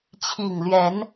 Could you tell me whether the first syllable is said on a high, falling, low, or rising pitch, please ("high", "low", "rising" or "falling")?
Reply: low